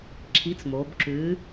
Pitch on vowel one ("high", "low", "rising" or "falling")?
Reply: rising